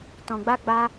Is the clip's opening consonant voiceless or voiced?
voiceless